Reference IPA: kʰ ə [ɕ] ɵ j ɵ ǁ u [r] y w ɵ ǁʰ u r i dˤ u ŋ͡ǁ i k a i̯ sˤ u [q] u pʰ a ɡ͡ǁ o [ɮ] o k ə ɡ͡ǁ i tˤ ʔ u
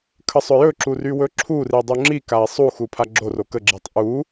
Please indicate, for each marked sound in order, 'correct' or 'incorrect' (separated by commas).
incorrect, correct, incorrect, incorrect